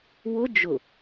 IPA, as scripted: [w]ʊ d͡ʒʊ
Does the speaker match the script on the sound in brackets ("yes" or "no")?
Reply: yes